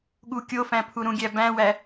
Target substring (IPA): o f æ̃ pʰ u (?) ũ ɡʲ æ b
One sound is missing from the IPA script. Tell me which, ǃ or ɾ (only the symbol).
ɾ